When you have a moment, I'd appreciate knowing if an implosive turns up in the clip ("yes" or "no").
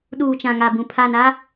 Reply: yes